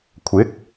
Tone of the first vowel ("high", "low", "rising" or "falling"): rising